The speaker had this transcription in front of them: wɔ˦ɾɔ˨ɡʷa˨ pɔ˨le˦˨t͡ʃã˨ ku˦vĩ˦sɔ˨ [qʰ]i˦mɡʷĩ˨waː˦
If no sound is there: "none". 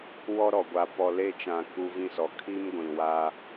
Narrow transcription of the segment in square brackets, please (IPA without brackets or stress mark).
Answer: kʰ